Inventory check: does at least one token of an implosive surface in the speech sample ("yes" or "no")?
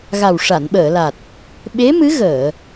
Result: yes